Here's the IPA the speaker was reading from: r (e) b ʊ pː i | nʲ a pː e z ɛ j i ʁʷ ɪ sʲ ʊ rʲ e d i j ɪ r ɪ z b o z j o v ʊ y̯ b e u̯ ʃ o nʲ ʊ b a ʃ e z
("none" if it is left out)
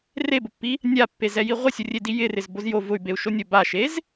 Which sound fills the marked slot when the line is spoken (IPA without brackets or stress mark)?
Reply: e